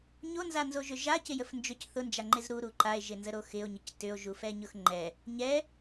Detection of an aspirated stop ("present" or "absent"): absent